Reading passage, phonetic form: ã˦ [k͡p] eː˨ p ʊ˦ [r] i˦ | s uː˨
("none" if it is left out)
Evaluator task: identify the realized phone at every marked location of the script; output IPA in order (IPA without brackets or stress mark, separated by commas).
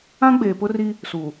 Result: ɡ͡b, r